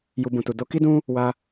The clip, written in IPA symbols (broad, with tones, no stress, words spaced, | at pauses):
ju˨ bũ˨tu˨ do˧ ki˧dũ˧ | wa˧